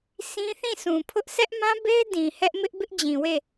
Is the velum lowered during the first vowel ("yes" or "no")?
yes